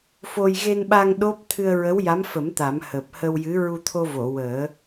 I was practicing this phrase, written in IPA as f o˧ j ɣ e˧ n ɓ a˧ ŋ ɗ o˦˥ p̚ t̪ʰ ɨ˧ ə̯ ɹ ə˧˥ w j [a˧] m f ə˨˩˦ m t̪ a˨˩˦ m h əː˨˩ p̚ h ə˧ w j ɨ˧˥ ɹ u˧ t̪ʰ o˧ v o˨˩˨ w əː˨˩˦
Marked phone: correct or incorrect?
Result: incorrect